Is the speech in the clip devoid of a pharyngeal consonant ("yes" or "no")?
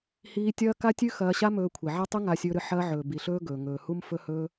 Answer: no